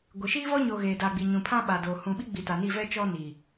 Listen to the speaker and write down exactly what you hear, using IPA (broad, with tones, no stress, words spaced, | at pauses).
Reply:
ɡʷɪ˨ ʃiː˦vɔ˦ɲoː˨ ɣeː˨da˨ɡ͡bi˨ ɲũ˨ pʰã˦ɓa˨doː˨ hũ˨ɓi˦ɡ͡bi˨ ta˨ni˦˨vɛ˦ t͡ʃɔ˦ni˨